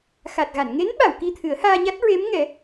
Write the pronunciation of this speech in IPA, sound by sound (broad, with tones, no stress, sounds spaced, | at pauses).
x a˨˩ t̚ ɣ a˨˩˨ n ŋ e˧˥ n ɓ a˨˩˨ w k i˧ t̪ʰ ɨ˨˩˦ ə̯ h aː˧ ɲ a˦˥ t̚ ɹ e˧˥ m ŋ ɛ˨˩˦